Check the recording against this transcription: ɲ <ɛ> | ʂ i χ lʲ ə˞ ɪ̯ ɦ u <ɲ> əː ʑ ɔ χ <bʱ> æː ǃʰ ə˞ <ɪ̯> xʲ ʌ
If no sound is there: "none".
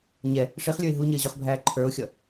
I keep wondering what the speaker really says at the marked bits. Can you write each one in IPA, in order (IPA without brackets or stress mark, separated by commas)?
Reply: ɛ, ɲ, bʱ, ʊ̯